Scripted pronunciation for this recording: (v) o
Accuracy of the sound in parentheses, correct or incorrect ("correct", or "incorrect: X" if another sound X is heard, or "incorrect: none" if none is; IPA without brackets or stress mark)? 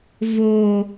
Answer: correct